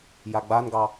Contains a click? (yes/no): no